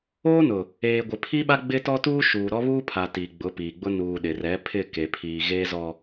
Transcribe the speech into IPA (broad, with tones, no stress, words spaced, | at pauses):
oː˦nʊ˨ | eː˨ɡʷɪ˨pʰi˦ɓa˦ ɡ͡bɪ˦tɔ˦tuː˦ ʃuː˨ɾɔ˦βuː˦pʰa˨ tiː˨ɡ͡bʊ˨˦piː˨ɡ͡bʊ˦ nuː˨ɗɪ˨rɛ˨˦ pʰɪ˦˨ke˨pʰiː˨ ɣeː˦zɔ˨